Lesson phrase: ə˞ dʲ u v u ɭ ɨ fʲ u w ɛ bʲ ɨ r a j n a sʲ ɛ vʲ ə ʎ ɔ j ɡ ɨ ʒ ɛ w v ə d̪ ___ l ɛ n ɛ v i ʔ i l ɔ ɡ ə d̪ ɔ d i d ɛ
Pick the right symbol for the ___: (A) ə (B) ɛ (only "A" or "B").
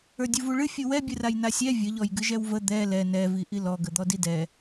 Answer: B